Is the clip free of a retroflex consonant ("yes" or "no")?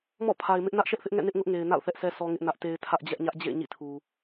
yes